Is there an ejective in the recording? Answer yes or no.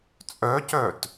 yes